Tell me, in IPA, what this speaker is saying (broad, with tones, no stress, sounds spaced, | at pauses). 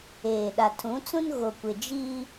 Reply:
eː˨ ɗ a˨ tʰ ũ˨˦ t͡s ũ˦ n ɣ o˨ kʷ ɪ˨ d͡ʒ iː˦